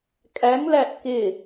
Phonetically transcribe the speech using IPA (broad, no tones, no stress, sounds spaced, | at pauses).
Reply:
kʼ æ ŋ l æ ʔ k ɪ